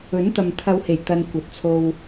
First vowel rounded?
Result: yes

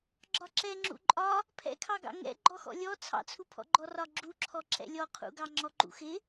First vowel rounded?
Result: yes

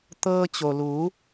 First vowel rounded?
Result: no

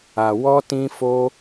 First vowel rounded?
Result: no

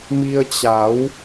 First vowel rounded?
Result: no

